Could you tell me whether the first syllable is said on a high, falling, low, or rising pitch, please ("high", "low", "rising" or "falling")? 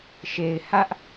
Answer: low